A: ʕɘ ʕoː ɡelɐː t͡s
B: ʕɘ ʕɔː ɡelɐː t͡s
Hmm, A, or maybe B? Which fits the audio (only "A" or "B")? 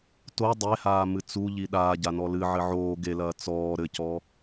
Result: A